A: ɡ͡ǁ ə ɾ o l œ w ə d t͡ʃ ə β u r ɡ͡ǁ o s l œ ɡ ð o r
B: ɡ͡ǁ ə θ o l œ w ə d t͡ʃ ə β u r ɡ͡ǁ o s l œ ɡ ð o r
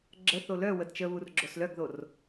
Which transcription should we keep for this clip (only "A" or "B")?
B